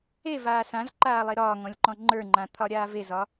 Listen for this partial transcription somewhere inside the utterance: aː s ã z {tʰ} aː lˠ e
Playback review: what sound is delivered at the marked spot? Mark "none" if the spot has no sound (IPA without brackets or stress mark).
ǃ